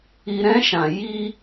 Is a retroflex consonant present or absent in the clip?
absent